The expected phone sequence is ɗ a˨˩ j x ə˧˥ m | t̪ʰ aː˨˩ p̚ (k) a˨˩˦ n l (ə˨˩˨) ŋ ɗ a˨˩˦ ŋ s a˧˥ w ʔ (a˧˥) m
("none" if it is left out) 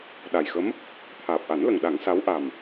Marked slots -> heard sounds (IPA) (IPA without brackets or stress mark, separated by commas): ʔ, ə˨˩, a˨˩